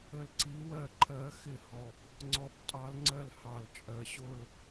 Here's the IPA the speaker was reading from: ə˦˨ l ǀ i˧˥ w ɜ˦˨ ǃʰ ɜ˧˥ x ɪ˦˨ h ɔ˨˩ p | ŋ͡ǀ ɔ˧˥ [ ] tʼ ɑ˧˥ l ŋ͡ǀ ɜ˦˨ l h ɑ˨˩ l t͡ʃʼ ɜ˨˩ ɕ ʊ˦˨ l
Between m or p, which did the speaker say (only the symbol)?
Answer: p